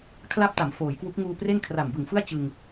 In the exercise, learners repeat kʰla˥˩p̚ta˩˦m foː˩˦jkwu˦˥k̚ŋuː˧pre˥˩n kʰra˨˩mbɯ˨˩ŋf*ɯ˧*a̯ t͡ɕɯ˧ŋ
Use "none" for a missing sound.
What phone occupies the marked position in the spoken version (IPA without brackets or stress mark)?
ɯ˥˩